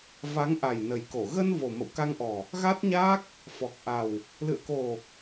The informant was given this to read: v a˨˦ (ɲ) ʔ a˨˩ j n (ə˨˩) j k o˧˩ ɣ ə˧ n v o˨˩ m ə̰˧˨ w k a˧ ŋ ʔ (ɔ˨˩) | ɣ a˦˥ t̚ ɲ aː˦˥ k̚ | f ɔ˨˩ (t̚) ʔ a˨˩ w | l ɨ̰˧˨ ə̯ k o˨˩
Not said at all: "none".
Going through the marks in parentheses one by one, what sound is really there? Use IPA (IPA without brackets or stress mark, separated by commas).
ŋ, ə˨˩, ɔ˨˩, k̚